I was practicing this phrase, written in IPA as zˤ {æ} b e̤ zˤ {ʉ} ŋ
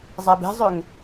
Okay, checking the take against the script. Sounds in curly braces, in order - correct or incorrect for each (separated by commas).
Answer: correct, incorrect